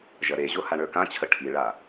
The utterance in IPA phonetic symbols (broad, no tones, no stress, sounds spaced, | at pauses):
ʒ ɐ ɾ e ʑ o h a ɳ ə˞ k ã t͡ɕʰ ə ʈʰ i ɭ a